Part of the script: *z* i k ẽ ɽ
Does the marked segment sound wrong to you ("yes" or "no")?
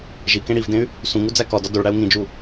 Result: yes